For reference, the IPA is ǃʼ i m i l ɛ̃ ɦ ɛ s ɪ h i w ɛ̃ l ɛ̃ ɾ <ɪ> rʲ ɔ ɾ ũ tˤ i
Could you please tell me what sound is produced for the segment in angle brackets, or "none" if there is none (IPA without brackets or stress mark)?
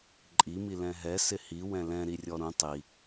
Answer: i